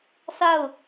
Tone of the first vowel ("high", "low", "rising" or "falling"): falling